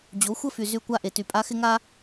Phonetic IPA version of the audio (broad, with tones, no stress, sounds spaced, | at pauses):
d͡ʑ o˨˦ xʷ ə˦ f y˨ z y˦ kʷ a˦ ʔ e˨ t y˨ pʼ a˦ x ɪ˦ ŋ a˦